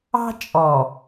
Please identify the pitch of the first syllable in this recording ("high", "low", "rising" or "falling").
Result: high